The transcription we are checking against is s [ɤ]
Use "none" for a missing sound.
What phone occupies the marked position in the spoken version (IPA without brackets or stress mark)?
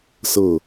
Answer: ɤ